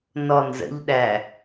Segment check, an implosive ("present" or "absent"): present